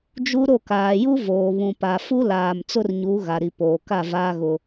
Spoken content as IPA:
d͡ʒ u˦ ɾ o˦˨ k aː˨ j u˦ v oː˨ β ũ˨ p a˨ f u˦ l aː˨ m t͡s ʊ˦ r ɲ u˨˦ ɣ a˨ ɾ i˨ p oː˨ k a˦˨ v aː˦ ɣ ʊ˦

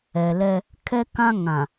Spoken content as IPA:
ɛ˨ l ɛ˦ | kʰ ɛ˦ k ã˦ ŋ ã˨

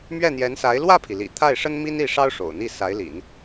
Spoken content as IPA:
m ɥ ɛ˥˩ n̪ j ɛ˧˥ n s a˧˥ ɪ̯ l w ä˥˩ pʰ i˩ l ḭ˨˩ t̪ʰ a˥˩ ɪ̯ ʂ ə˥ n m i˥ n i˥˩ ʂ ɑ˥ ʊ̯ ʂ o̰˨˩ ʊ̯ n̪ i˥˩ s a˧˥ ɪ̯ l ḭ˨˩˦ n

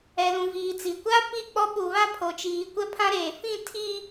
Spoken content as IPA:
ɛ˨ l ũ˨ v iː˨ t͡s i˨ kʷ a˦ p i˦˨ k͡p ɔ˦ ɓ u˨ β a˦ pʰ o˨ t͡ʃ iː˨ kʷ ɛ˦ pʰ ã˦ ɾ eː˨ f ĩ˦˨ tʰ i˦

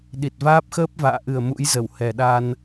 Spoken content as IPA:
ɗ i˨˩ t̚ v aː˦˥ p̚ x əː˦˥ p̚ v a̰ː˧˨ ʔ ɨ˨˩ ə̯ m ṵ˧˥ j z ə˧˩ w h ɛ˨˩ ɗ a˧ n

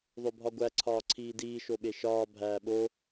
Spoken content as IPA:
ðˤ o bʱ ɒ ɡʷ æ ǀʰ ɒː ǀʰ iː d iː ʃ o ɓ e ʃ ɒː bʱ æː ɓ o

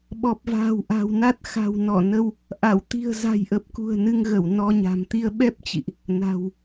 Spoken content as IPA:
ɓ ɔ˨˩ p̚ v a̤ː˨˩ w ʔ a̤˨˩ w n a˦˥ t̚ x a̤˨˩ w n ɔ˧˩ n ə˧ w | ʔ a˧˩ w t̪ i̤˨˩ ə̯ z a̤˨˩ j ʔ ə˨˩ p̚ k ṳ˨˩ ə̯ n ɨ˧ ŋ ɣ ə˧˩ w n ɔ˧ ɲ a̤˨˩ m t̪ i˧ ə̯ ɓ ɛ˦˥ p̚ t͡ɕ ḭ˧˨ ʔ | n a̤˨˩ w

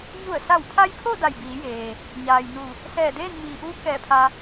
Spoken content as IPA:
ɲ u˧˩ ə̯ s a˧˩ w pʰ a˧ j pʰ o˥˨ d a˧˩ j b iː˩˧ j eː˩ | ɲ aː˩ j n u˧˩ | s ɛː˧˩ d eː˥˨ n m iː˩ ʔ uː˧˥ k ɛː˧˩ pʰ a˧

